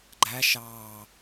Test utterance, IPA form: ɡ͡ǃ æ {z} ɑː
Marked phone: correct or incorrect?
incorrect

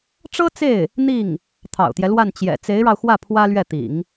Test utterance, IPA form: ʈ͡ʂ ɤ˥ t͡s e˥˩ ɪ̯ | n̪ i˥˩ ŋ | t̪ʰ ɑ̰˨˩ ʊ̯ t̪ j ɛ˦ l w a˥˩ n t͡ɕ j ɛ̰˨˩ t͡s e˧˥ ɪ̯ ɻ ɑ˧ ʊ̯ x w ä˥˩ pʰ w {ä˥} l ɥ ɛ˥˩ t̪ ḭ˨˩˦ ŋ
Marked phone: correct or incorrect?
correct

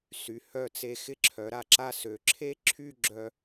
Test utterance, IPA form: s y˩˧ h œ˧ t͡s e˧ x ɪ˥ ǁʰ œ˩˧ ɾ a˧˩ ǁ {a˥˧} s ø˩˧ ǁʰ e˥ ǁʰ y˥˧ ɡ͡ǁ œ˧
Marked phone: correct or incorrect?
correct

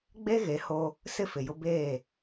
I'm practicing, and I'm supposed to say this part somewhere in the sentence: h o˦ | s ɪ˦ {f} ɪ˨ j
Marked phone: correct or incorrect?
correct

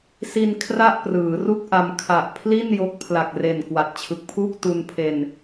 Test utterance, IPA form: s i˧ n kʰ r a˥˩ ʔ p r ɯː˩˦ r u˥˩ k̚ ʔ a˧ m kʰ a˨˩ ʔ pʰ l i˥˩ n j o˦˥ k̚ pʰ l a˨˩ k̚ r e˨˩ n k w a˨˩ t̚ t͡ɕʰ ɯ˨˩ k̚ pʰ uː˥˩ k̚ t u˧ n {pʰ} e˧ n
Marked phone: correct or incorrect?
correct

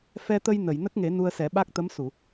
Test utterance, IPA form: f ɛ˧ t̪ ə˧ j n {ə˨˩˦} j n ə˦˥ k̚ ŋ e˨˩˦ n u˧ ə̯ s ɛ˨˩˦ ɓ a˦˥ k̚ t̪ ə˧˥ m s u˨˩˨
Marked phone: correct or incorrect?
incorrect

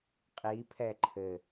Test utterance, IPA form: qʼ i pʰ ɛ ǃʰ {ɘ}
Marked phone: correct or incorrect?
correct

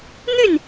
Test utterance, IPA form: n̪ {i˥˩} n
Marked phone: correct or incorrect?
incorrect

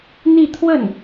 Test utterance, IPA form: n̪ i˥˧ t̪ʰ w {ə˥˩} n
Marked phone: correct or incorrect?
correct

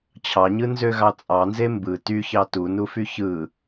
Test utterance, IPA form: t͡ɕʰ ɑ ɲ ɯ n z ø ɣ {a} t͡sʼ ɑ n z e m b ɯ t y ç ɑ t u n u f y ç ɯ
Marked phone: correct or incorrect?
incorrect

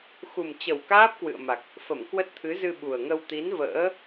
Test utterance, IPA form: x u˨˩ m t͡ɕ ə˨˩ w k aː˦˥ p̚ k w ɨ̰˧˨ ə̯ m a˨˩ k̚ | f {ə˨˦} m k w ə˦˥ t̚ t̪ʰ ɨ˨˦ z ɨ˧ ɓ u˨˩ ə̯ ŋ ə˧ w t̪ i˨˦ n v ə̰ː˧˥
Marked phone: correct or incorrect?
incorrect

